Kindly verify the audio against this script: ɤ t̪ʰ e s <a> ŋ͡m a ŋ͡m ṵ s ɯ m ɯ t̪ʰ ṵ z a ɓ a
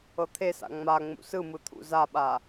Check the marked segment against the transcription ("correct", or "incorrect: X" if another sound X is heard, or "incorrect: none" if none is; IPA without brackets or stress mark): incorrect: a̰